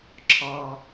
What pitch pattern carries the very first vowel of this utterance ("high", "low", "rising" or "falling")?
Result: low